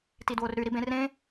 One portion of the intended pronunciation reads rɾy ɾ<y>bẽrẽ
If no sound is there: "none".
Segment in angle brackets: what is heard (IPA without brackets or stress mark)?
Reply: i